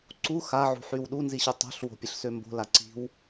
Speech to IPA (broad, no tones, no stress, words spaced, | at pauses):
ǀu xaʕṳħyw ɗunziɕu tˤo̤ɬ wo̤pʲəɬsømbo̤ laǀi̤w